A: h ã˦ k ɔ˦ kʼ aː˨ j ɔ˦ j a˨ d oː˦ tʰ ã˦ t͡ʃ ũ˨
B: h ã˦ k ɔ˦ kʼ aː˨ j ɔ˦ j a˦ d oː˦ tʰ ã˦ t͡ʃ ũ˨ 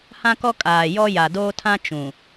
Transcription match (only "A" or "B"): A